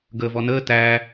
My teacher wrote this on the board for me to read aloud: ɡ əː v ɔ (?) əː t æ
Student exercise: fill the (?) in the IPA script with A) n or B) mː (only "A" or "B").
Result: A